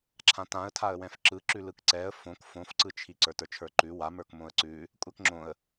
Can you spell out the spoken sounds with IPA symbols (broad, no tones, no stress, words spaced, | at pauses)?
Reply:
ǁʰãtãə̯tʰaə̯wɛ̃f ǁɯ ǁʉlɯkǀɛə̯ fõk fõfǀɯt͡ʃʰi ǀə˞tə˞t͡ʃʰə˞ǃʉ wamə˞k mõə̯ǀʉ | kʷʼɛkŋ͡ǁõə̯